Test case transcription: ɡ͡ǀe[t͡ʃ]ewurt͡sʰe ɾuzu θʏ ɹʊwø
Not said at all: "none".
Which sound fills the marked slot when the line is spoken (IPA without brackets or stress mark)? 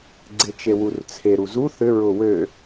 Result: t͡ʃ